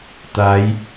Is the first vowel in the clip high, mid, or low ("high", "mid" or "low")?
low